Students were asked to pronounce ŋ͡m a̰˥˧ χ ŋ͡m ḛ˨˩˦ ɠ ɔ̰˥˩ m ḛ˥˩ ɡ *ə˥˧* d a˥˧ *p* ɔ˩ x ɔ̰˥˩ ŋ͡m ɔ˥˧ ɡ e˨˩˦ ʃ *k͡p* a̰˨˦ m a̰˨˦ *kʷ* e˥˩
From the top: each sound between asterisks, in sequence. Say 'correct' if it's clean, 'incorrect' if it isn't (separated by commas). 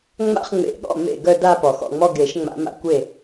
incorrect, correct, incorrect, correct